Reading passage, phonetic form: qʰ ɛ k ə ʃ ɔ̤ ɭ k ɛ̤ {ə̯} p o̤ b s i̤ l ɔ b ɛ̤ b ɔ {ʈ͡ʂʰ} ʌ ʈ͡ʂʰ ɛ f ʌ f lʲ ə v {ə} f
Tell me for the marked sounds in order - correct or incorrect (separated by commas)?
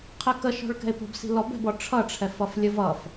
incorrect, correct, incorrect